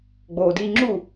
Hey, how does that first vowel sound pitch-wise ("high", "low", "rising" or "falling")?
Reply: low